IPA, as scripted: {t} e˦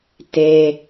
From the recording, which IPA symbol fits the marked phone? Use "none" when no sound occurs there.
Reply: t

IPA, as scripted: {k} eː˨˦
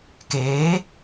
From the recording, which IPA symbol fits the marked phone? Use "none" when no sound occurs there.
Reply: k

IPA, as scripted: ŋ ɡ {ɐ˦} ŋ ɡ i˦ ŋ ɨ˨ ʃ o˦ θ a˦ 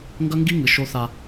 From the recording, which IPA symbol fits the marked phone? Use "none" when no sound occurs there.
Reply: ɐ˦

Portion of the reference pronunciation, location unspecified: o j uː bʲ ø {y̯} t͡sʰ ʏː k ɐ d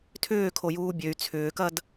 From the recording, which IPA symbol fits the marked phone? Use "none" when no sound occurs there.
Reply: y̯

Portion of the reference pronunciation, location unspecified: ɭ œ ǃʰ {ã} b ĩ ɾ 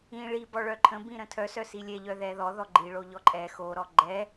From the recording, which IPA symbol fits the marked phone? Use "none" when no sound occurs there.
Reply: ə̃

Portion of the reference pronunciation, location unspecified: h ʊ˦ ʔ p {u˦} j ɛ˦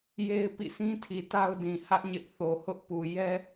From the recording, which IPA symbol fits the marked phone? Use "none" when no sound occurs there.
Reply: u˨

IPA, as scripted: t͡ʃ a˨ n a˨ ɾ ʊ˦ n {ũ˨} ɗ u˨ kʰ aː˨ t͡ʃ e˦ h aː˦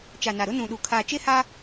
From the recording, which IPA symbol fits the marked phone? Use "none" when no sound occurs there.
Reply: ũ˨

